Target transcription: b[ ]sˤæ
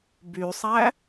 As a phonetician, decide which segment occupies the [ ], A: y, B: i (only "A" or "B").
A